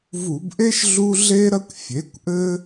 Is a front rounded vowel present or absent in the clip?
absent